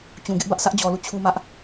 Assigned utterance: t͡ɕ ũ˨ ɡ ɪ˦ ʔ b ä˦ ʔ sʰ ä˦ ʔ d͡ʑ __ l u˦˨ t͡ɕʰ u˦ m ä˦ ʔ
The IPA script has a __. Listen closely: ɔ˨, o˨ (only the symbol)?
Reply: ɔ˨